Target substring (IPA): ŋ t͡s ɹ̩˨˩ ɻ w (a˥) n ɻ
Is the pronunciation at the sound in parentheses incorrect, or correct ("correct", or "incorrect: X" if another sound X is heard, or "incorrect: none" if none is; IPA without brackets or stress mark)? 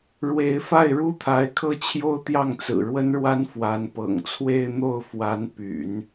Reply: incorrect: ə˥